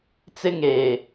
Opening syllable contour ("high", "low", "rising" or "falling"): high